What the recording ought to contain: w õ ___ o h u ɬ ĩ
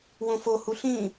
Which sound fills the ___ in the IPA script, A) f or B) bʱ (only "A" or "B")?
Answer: A